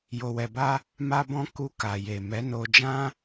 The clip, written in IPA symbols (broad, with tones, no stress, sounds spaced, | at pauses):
j o˨ w ɛ˨ b a˧ | m a˧ b ɔ̃˧ k u˧ k a˨ j e˨ m ɛ˨˦ n o˧ d͡ʒ ã˦